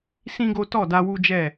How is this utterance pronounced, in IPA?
sĩ˦ɡo˦ tɔ˦˨da˧ wu˦d͡ʒɛ˦˨

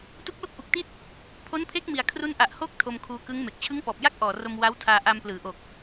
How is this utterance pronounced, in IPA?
tu˦˥k̚ lo˥˩k̚ʔu˨˩k̚ti˥˩t̚ | pʰo˦˥npʰe˦˥k̚mi˨˩a̯ kʰru˦˥nʔa˨˩ʔhoː˥˩k̚ tʰo˧mkʰuː˧ kɯ˦˥ŋme˨˩k̚ t͡ɕʰɯ˦˥ŋpɔː˨˩p̚ja˥˩k̚ʔɔː˨˩ ro˧mwa˦˥w tʰaː˧ʔa˧mplɯː˩˦ʔo˨˩k̚

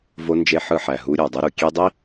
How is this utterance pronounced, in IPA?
vo˧nd͡ʒe˧ ħɯ˧ħæ˨ɦu˧ ɾʲɑ˨dˤɯ˧ɾu˨ kʲe˧dˤi˦

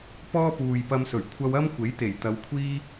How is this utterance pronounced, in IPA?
pɔː˥puː˨jpɐ˧msɵ˨˩ɥ kʷʰɐ˧wɐ˥m kʷe˨˥jt̪e˨˩j t̪ɐ˨˧wkʷʰiː˥

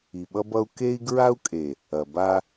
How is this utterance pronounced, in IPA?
i˨ɓʌ˦ bʌ˦u̯ ke˦i̯ɡɹa˦u̯kʼe˨ | ɐ˨ba˦

